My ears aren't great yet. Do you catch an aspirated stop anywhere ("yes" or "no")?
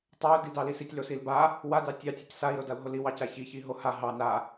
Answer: no